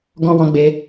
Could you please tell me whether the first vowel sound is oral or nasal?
nasal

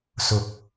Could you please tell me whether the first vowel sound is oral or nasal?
oral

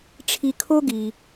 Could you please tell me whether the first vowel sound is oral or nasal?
oral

